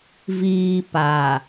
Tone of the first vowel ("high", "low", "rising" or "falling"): low